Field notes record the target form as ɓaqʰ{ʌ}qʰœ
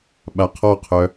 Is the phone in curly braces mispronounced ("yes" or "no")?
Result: yes